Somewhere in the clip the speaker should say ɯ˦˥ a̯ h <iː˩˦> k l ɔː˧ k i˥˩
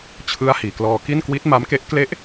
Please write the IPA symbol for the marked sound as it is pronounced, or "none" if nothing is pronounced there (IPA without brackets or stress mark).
iː˩˦